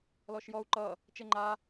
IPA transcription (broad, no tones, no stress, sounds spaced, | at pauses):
l ɔ ʃ j ɔ u̯ ǃ ʌ | t͡ʃ e ŋ͡ǃ a